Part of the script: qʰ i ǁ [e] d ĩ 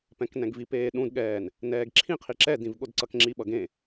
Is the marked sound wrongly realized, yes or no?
yes